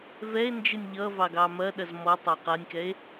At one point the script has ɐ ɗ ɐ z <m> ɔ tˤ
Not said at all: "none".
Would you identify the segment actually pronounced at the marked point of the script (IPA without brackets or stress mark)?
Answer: m